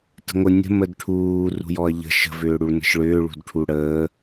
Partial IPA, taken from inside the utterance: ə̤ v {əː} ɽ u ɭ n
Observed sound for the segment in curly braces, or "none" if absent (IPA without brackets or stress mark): ʏː